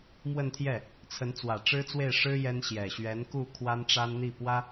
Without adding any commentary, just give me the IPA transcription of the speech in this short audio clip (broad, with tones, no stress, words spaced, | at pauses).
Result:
mwə˥˧nt̪ʰjɛ˥˩ | t͡sʰə˧˥nt͡swä˨˩ ʈ͡ʂɻ̩˥t͡swe˥˩ɪ̯ʂɻ̩˥ jɛ˥nɕjɛ˨˩ ɕɥɛ˧˥nku˥˩ kʰwa˥nʈ͡ʂa˥nn̪i˥˩pwä˥